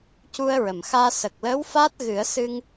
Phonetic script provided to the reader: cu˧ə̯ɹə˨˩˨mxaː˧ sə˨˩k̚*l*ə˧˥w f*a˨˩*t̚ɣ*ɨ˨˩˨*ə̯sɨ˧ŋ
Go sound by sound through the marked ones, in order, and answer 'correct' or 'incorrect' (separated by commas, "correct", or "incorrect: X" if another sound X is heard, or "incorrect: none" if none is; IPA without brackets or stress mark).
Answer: correct, incorrect: a˦˥, incorrect: ɨ˨˩˦